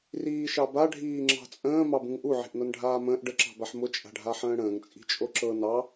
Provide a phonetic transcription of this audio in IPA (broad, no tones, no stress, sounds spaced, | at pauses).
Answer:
r iː ʃ ɑ b a ɖʱ iː ŋ͡ǁ ɑ̤ t͡sʼ ə̃ː m ɑ b ũ ŋ ʔ u ʕ i̤ ʔ n ɤ n ɖʱ aː m ə̃ː ʔ ɖ ə ǁ ɑ̤ b a ħ m ʊ t͡ʃʼ a̤ ɖʱ a ħ ə̃ː ɽ ə̃ː ŋ t͡sʼ i̤ t͡ʃʼ o ǁ ɤ n ɑ